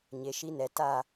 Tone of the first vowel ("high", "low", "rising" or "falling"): low